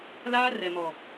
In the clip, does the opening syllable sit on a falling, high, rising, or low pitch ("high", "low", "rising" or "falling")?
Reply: high